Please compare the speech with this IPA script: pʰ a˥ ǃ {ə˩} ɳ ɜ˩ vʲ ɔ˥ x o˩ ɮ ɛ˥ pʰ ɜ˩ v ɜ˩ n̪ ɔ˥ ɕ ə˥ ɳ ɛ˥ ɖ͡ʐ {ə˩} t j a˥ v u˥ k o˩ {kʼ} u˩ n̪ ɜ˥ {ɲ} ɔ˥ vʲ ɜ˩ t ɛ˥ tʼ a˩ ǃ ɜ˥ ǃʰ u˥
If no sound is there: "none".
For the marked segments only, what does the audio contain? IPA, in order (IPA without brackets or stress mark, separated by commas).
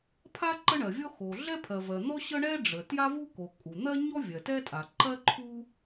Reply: ə˥, ə˩, kʼ, ɲ